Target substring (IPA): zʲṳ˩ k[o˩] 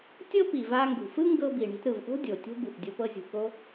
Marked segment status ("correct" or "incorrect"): incorrect